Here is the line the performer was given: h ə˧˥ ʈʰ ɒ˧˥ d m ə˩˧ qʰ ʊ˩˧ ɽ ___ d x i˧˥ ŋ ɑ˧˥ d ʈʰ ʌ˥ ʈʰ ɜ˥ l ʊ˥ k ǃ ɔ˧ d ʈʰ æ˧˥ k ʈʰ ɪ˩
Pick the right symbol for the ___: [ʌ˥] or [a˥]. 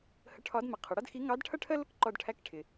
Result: ʌ˥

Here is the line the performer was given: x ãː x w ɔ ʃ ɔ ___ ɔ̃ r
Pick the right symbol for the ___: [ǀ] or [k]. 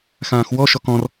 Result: k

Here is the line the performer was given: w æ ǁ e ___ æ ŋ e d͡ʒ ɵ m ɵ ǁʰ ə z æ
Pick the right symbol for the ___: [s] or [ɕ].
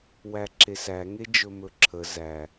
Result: s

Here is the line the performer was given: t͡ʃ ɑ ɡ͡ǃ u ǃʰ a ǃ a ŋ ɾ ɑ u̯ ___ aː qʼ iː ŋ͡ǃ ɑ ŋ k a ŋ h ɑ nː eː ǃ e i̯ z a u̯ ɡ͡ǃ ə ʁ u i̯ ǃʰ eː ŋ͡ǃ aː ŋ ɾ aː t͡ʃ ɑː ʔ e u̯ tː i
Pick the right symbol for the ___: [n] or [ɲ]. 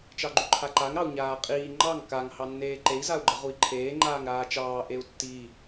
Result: ɲ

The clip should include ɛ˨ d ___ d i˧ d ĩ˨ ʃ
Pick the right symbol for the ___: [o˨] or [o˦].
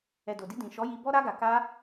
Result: o˨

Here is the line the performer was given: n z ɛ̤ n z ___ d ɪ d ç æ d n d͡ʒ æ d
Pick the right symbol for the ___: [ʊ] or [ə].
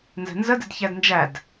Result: ə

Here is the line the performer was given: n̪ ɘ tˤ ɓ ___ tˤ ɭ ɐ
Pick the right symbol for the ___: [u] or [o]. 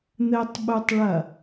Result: u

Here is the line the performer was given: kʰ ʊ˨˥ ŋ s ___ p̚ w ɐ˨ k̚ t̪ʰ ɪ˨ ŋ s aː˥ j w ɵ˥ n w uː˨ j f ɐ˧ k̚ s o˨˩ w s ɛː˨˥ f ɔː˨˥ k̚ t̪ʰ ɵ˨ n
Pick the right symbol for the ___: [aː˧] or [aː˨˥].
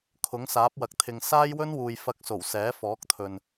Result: aː˨˥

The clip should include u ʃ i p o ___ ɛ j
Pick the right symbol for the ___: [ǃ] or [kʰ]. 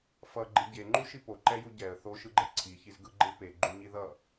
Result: ǃ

